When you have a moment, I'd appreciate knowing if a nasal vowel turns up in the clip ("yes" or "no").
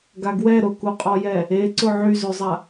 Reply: no